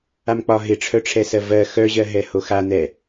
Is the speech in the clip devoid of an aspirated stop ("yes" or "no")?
no